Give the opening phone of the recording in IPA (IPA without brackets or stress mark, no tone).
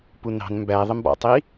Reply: p